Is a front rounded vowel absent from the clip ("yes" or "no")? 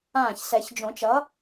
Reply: yes